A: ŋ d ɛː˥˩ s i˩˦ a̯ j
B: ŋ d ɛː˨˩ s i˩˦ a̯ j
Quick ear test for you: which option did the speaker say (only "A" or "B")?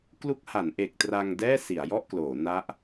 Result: A